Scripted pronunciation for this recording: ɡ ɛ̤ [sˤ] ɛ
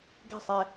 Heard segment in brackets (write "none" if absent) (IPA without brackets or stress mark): sˤ